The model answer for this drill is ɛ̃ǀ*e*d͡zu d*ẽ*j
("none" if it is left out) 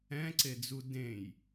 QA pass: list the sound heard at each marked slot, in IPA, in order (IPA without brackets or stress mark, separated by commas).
e, ẽ